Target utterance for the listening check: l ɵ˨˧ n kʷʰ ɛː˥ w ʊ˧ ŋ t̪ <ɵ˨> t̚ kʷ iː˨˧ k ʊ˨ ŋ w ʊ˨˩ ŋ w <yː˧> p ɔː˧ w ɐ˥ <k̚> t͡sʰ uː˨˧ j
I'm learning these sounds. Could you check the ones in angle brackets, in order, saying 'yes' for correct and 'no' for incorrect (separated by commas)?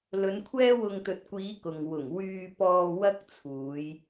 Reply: yes, yes, yes